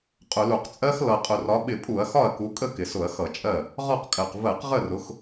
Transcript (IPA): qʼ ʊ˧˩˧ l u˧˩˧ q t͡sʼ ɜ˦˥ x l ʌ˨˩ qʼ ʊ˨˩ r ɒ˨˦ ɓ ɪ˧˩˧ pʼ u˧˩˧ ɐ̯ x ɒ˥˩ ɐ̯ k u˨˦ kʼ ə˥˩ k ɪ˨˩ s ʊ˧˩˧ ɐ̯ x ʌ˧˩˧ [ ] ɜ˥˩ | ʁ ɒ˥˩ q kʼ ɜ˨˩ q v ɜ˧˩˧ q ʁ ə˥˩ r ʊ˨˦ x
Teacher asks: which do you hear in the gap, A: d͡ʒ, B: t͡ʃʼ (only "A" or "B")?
B